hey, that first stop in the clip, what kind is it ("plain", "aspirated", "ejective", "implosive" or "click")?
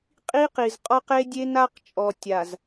ejective